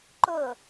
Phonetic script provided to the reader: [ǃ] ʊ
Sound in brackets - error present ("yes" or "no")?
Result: no